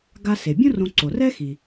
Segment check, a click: present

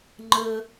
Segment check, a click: present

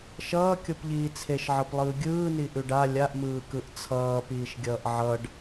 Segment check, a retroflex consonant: present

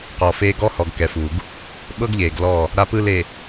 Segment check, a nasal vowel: absent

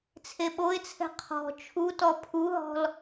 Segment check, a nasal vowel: absent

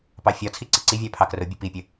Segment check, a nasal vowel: absent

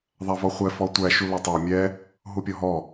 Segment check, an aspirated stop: absent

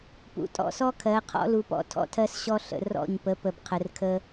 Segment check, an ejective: present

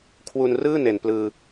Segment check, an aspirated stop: present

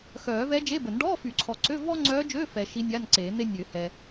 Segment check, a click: present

